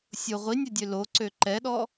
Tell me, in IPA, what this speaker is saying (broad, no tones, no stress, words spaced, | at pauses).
sʲʊ ʁʷinʲɛdʲø loǀø ǃɛɗɔ